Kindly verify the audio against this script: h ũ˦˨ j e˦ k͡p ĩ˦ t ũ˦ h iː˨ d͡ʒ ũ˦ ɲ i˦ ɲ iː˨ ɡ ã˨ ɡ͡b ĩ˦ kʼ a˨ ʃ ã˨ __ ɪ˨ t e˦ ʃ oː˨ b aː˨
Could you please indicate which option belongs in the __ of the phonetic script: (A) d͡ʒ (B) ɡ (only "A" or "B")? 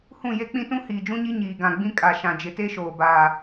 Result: A